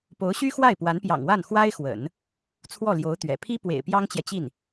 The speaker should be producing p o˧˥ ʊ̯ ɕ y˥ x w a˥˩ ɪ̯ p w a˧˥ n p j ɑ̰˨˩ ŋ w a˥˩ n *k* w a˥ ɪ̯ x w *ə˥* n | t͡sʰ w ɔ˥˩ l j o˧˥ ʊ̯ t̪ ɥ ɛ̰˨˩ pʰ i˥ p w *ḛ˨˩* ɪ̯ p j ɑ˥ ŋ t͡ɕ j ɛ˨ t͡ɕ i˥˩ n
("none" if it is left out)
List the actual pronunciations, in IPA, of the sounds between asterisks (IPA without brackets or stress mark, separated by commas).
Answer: x, ə̰˨˩˦, ḛ˨˩